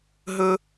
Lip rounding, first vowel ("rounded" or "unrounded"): rounded